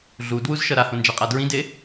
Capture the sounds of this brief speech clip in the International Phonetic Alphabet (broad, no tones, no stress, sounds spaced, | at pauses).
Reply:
ɮ u d w u z ʃ ʌ ɾ a h õ n d͡ʒ a qʼ a d ɹ ĩ d e